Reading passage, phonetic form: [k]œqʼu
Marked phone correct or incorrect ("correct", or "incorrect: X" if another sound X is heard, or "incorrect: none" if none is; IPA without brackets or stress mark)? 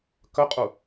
correct